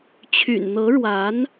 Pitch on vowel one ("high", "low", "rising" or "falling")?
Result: low